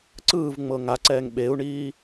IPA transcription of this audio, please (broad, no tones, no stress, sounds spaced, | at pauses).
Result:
ǀ ɯː v ŋ͡m ɤ ŋ a ǀ ɛː ŋ ɓ e u̯ ɳ iː